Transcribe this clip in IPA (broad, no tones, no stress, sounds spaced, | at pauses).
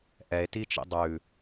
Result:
ʔ ɛ e̯ t i t͡ʃ ḭ dˤ ʉ